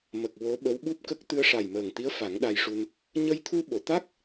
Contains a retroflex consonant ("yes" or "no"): yes